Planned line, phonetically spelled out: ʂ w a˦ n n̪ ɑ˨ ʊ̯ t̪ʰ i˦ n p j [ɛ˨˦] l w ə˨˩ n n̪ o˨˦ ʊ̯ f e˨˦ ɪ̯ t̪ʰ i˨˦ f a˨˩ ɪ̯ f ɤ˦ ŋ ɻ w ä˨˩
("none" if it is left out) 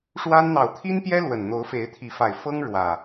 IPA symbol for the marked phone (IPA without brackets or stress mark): ɛ˦